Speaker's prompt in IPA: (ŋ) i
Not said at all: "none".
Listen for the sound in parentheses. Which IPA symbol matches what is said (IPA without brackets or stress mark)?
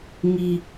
ŋ